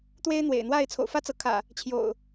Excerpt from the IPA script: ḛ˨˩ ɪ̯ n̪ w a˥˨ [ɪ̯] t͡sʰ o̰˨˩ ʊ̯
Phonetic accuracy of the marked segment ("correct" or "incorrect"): correct